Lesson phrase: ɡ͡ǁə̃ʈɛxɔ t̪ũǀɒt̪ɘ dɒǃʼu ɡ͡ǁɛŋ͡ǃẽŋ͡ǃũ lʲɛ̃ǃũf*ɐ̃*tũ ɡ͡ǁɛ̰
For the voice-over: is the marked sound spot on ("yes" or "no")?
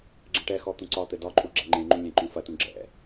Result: no